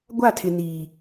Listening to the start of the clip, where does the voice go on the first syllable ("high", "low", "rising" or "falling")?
falling